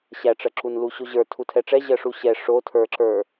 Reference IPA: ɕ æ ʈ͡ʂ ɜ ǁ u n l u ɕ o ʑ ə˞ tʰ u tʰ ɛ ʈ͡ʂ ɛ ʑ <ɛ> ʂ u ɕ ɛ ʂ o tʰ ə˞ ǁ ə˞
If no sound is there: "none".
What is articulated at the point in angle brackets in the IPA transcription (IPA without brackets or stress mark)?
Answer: ɜ